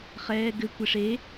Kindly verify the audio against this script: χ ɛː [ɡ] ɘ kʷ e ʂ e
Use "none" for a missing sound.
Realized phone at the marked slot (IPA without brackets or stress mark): ɡ